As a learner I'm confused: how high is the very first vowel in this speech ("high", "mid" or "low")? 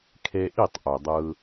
mid